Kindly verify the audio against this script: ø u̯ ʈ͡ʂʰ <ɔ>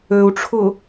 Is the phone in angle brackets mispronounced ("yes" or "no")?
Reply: yes